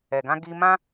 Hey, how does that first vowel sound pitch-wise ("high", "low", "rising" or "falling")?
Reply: low